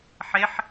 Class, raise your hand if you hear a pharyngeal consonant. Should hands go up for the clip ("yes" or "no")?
yes